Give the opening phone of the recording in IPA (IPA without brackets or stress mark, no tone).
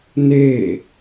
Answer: n